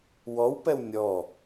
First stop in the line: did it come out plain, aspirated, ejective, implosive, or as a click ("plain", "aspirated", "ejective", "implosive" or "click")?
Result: plain